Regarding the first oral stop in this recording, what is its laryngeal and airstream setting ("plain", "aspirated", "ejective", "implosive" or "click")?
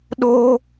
implosive